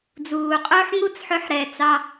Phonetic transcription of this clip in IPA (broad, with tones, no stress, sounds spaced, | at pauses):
d͡z uː˩ qʼ ɵː˥ ħ ŋ u˥ t͡s ħ ɵ˧ ħ ɾ ɛ˩ t͡s ɑ˧